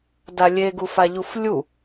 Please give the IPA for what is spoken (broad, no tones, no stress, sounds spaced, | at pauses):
d a lʲ e ɡ u f a ʎ u f lʲ u